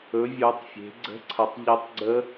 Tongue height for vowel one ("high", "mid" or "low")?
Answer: mid